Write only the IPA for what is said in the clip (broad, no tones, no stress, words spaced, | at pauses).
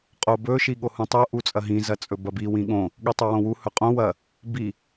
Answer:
qʼobɵ ʃiɠohũtˤo ʔut͡sʼɐɦĩ zɐt͡sʼɵbɐbi wĩɠõ | ɠitˤuwõwu hɵqʼõ wɐ | bi